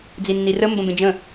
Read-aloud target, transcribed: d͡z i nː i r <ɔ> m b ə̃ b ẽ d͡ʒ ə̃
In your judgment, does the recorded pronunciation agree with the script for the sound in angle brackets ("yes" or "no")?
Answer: no